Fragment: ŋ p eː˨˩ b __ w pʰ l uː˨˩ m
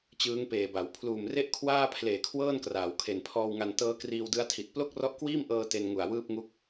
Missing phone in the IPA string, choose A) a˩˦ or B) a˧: A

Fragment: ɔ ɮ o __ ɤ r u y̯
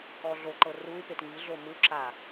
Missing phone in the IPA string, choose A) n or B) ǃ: B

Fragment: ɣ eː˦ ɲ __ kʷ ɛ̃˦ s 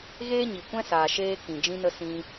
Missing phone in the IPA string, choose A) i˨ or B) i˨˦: A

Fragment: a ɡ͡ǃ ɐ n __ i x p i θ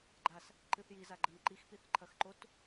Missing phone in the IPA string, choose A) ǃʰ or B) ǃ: B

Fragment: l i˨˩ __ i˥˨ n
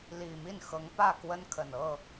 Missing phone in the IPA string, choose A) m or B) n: A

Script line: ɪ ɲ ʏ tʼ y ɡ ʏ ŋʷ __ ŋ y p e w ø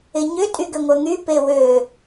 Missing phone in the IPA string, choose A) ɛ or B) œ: B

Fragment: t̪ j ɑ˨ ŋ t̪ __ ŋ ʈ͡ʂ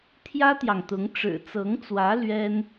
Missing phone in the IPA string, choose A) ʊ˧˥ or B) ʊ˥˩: A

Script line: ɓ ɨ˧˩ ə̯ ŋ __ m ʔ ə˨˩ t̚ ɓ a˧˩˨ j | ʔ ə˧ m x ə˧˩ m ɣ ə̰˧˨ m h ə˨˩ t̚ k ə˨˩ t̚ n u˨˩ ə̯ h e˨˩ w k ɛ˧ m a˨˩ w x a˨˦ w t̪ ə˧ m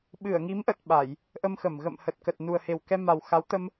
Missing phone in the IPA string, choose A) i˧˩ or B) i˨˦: B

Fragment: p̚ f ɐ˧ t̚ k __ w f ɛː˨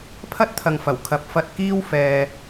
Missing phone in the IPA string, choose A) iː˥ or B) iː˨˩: A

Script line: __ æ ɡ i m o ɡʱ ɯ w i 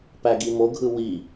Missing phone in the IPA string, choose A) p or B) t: A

